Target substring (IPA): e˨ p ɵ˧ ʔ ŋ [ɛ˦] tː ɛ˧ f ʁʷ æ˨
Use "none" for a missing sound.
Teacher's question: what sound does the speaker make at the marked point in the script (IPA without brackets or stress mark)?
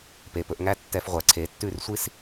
æ˦